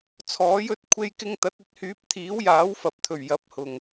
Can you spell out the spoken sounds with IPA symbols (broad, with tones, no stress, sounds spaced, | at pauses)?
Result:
t͡sʰ ɔː˨˥ j ɵ˨˥ t̚ kʷʰ e˧ j k ɪ˧ ŋ t̪ ɐ˨˥ t̚ ɵ˧ t̚ h yː˨˥ p̚ t̪ʰ iː˨˥ w j aː˨˥ w f ɐ˨ p̚ t̪ʰ ɵ˨˩ ɥ j ɐ˨˥ p̚ h ʊ˨˩ ŋ